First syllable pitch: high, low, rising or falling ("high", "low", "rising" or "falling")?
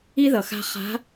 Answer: high